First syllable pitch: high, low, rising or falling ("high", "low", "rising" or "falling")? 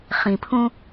low